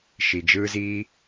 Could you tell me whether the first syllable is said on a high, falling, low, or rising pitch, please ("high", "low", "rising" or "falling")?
low